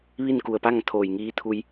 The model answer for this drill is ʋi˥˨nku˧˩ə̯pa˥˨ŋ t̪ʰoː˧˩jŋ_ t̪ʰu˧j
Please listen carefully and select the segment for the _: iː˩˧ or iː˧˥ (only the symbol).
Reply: iː˧˥